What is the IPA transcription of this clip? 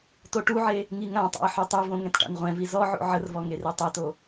toʈuʕe | ŋiŋãtˤa̰ə̯ ħytˤuvõ ŋɛ̃tʈa̰nʁʷɛ̃vi zɔʕo̰ ʕərvɔ ŋeretˤɛto

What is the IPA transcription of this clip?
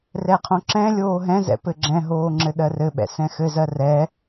rɛqʰõǁɛ̃lʲoː ɦɛ̃zɛ̰ pɘɡ͡ǁɛ̃ɦoː ŋ͡ǁɘɗɜrɘɓɛ̰ sɛ̃xɘzɜ rɛ

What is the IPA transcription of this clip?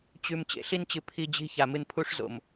t͡ɕʉ˨m t͡ɕḛ˨ɬi˦nt͡ɕɨ˨ pʰi˦d͡ʑi̤˦ ça˨mɨ˦n pʰu˦ʂzo̰˨m

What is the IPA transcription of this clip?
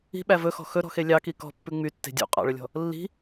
i̤ɓæ vɵxɔ̤ xɵɾɔ̤xe lʲɑki kɔ̤pːʉ ŋ͡mytːe̤ dʲṵ qʼɑ̰ɭɵlʲɔ̤ | lːi̤

